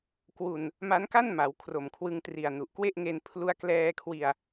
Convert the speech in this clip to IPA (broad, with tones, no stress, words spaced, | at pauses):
kwu˧n | ma˦˥nka˥˩nma˩˦w kʰro˨˩mkʰwɯ˧ŋtri˨˩a̯ nu˨˩ʔkwe˥˩ʔŋe˧n pʰlu˧a̯klɛː˧kʰwi˧a̯